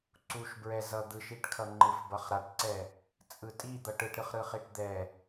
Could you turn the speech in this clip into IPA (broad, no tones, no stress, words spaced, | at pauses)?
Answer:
ǀuʃbɹɛ zʌd̪ɯʃiʈkʰʌ ŋ͡ǃɯfbʌχɾaʈǀɛ | t͡sʼɯtʼi d̪ʌʈɯʈɾɯχ ɾɯχiʈd̪ɛ